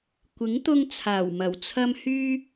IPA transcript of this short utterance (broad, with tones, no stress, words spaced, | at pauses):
kʷɪ˨˥ŋ t̪ʊ˧ŋt͡sʰaː˨˩wmɐ˨˩wt͡sʰɐ˧m hyː˧